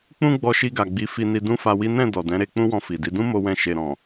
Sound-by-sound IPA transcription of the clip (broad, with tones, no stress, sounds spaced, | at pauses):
k͡p ũ˦ ɡ͡b ɔ˧ ʃ i˧ ɡ a˨ ɡ͡b i˨˦ f i˧ n i˧ d ũ˦ f a˧ w i˦ n ɛ̃˦˨ d ɔ˨ d ɛ̃˨˦ ɾ e˧ k͡p ũ˦ w ɔ̃˧ f i˨ d i˨˦ d ũ˦ m o˦ w ɛ̃˦˨ ʃ e˨ ɾ ɔ̃˨